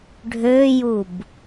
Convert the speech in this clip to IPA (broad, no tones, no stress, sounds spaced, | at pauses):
ɖʱ øː j u b